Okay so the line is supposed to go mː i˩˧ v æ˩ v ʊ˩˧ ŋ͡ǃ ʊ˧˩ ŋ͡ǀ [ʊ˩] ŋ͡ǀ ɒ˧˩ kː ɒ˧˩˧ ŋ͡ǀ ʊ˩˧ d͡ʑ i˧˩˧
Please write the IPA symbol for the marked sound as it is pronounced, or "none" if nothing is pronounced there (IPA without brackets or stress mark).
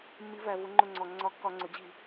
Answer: ɔ˩